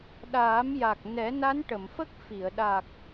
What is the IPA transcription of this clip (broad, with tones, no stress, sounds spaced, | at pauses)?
ɗ aː˨˩˦ m j a˨˩ k̚ n ɛ˨˩˦ n a˧˥ n ʈ ə˨˩˨ m f ə˦˥ k̚ f i˨˩˨ ə̯ ɗ a˨˩ k̚